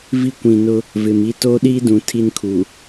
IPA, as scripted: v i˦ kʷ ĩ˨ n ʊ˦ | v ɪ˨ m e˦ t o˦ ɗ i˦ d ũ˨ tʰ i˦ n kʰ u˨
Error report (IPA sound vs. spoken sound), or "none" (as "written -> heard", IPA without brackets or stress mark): e˦ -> i˦